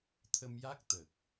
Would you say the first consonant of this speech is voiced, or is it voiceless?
voiceless